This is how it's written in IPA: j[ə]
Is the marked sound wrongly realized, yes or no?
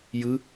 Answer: yes